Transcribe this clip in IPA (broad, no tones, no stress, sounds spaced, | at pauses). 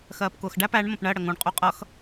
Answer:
x ɜː p k ʊː x ɖ æ p æ ɳ m ə̃ p ɳ ɜ ɽ ə ŋ ũ ɳ qʼ u qʼ ʌ x